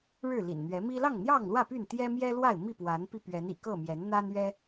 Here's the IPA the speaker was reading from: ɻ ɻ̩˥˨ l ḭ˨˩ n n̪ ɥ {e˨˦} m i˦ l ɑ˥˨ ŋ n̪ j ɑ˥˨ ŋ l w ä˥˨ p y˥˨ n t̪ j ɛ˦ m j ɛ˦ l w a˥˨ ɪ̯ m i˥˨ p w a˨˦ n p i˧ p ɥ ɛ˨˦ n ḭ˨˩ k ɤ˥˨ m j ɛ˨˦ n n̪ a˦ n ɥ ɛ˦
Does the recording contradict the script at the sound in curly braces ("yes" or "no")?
yes